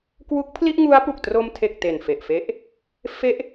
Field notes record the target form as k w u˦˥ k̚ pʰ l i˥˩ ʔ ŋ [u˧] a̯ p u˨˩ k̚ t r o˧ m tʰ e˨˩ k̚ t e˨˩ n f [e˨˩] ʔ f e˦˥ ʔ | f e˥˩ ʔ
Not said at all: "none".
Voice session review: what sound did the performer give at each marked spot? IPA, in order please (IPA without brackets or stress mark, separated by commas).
u˦˥, e˨˩